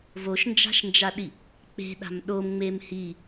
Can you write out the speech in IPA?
v o ʃ n d͡ʒ a̤ ʃ n d͡ʒ a ɗ i | k͡p e̤ ɗ a̤ m ɗ o m ŋ͡m e m h i

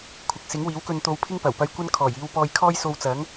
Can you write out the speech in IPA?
kʷʰ ɐ˨ k̚ s ɪ˨˥ ŋ w iː˨˥ w k ɵ˧ n t̪ o˧ w pʰ ɪ˥ ŋ p ɐ˨˩ w p ɐ˧ j kʷ ɐ˥ n kʰ ɔː˨˩ j iː˧ w p ɔː˧ j kʰ ɔː˥ j s o˧ w t͡s ɐ˨˥ ŋ

